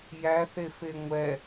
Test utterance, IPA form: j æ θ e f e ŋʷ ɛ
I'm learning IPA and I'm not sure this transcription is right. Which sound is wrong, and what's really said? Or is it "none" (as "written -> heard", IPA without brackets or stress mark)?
none